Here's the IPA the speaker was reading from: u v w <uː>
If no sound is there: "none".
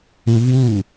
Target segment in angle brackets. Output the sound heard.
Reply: uː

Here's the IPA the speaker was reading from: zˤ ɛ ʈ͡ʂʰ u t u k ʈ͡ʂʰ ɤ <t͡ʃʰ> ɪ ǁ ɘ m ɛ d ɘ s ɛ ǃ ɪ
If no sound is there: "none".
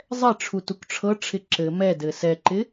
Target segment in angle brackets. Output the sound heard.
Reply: ʈ͡ʂʰ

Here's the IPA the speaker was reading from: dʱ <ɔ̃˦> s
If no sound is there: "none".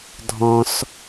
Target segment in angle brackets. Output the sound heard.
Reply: ɔ̃˦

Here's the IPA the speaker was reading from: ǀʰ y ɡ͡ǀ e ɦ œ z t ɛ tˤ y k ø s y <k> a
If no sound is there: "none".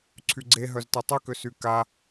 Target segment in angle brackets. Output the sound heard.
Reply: k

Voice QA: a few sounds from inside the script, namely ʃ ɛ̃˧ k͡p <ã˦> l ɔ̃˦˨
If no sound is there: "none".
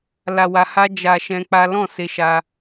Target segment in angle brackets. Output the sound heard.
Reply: a˦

